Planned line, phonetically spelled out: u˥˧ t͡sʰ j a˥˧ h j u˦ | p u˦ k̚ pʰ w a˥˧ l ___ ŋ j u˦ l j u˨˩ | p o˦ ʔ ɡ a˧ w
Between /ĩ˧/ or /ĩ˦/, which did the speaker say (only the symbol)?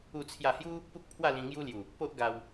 ĩ˧